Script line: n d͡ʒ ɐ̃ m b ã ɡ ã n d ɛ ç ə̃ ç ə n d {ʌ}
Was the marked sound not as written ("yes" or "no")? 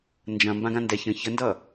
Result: no